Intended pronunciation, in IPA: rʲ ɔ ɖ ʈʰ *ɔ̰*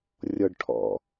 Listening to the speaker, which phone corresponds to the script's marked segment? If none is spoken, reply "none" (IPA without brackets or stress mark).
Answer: ɔ̰